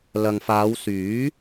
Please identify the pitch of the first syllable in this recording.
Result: low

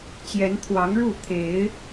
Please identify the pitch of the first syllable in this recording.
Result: rising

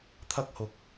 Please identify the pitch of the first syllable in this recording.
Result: high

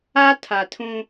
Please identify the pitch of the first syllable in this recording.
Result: high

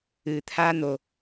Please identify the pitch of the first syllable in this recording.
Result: low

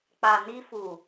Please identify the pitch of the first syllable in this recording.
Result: low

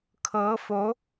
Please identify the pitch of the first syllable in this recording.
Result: rising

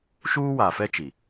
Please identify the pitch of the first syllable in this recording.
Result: high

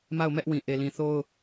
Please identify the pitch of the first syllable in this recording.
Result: falling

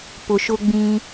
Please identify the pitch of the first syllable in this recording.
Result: low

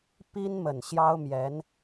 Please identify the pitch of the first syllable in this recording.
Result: high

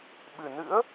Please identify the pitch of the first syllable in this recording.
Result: low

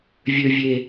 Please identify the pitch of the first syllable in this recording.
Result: high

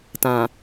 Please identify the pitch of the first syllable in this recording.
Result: low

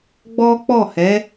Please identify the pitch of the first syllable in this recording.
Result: high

